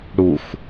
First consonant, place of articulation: retroflex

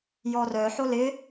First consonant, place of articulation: palatal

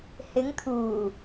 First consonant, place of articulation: glottal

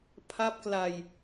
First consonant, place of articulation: labial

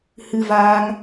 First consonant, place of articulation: glottal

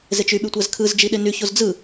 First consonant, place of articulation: alveolar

